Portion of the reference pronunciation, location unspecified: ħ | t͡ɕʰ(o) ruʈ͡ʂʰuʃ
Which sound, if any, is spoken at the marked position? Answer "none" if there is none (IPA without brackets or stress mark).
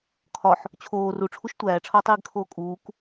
oː